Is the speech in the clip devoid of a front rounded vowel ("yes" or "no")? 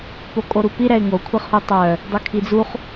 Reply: no